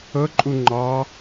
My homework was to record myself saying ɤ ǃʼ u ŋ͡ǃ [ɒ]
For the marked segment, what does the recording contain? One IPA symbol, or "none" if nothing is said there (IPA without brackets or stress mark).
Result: ɑ